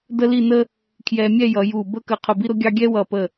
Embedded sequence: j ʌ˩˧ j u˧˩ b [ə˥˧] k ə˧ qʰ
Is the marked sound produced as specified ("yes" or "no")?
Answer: yes